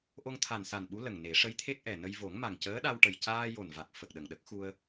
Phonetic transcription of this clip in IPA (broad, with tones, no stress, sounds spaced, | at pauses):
ʔ o˧ ŋ t̪ʰ a˨˩ n s a˨˩ n ɓ u˧˥ l ə˨˩ ŋ n e˨˩˦ ʂ ə˧˥ j t̪ʰ e˦˥ k̚ ʔ ɛ˨˩ n ə˧ j v o˨˩˦ ŋ m a˨˩ ŋ c əː˧˥ ɗ a˧ w ʈ ə˨˩ j c aː˧ j o˨˩ n v a˨˩ k̚ f ə˨˩ k̚ ɗ ə˨˩ ŋ ɗ ə˦˥ k̚ x u˧ ə̯